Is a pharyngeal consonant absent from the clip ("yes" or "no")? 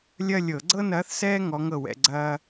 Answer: yes